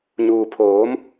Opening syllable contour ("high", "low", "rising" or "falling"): low